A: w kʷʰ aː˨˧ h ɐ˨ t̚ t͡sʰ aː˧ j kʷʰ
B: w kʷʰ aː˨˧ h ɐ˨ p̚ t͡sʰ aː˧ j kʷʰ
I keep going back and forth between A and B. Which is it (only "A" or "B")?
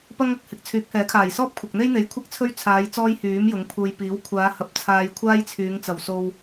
B